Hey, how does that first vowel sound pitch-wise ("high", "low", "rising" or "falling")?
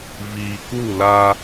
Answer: low